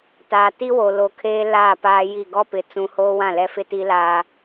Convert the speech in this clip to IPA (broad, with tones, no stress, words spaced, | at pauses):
taː˨ti˦wo˨loː˨ kʰeː˦laː˦˨ paː˦ji˦˨ ɡɔ˦pɪ˨ t͡sũ˦ hoː˦wã˦˨lɛ˦fɪ˦ ti˦laː˦